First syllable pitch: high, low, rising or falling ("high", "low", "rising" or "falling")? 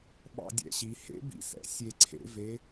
falling